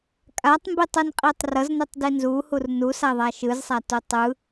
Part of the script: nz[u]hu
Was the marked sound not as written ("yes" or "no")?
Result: no